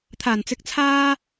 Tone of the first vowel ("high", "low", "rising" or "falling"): low